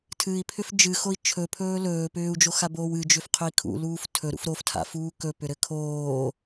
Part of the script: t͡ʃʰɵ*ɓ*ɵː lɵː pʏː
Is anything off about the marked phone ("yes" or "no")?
yes